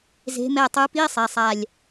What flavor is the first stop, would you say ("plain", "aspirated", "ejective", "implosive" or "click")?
plain